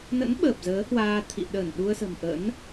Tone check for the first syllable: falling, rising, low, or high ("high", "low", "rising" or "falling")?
rising